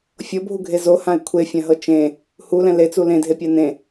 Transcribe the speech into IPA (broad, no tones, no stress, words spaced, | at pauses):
fʲɤbʱuɡʱe zohãɪ̯ kʷʰefʲãɦɤ t͡ʃẽ | hulɛ̃ let͡su lẽdʱepʲa nẽ